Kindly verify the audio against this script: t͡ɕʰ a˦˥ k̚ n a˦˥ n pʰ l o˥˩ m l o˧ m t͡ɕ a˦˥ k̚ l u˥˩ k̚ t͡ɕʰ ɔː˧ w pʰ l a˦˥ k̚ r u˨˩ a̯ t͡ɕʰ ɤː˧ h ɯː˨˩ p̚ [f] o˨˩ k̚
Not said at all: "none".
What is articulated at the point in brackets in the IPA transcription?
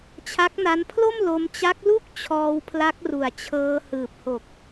h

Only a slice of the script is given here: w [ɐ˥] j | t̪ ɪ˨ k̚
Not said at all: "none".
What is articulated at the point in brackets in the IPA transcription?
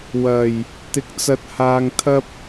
ɐ˨˩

